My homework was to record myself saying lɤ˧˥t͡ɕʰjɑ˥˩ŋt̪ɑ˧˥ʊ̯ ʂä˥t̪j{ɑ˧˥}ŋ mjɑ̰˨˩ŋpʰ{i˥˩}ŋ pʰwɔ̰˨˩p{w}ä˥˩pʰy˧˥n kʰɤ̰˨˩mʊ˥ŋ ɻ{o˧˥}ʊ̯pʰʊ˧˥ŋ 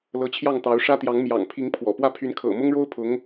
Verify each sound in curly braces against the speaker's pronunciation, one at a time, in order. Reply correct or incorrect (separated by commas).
correct, incorrect, correct, incorrect